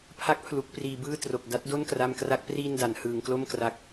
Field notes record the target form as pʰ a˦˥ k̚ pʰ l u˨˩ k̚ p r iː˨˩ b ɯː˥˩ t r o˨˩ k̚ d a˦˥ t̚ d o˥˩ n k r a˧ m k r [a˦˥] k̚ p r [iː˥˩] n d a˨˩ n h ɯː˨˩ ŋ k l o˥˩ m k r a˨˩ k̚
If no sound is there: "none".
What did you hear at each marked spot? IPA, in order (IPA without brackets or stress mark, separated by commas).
a˦˥, iː˥˩